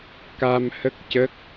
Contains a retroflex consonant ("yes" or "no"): no